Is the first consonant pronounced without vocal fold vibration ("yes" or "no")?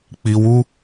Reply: yes